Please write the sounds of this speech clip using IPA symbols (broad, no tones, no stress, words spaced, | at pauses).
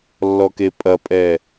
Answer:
lːɔkepʼɐpʼɛ